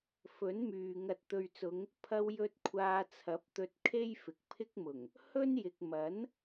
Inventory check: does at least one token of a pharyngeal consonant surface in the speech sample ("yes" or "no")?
no